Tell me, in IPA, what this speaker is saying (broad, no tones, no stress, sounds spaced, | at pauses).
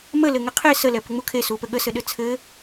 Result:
m ə l ɘ ŋ ɘ qʰ e s ə l ɛ p ɘ ŋ͡m u kʰ e s u p ɘ ɠ ə s ɘ ɗ ɘ t͡sʰ ɘ